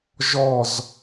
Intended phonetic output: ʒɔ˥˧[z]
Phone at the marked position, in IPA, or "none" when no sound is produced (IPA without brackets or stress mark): z